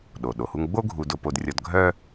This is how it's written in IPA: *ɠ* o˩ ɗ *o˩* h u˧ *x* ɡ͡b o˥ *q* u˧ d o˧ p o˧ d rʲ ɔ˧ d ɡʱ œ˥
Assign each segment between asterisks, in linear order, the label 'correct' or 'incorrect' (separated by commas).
incorrect, correct, incorrect, incorrect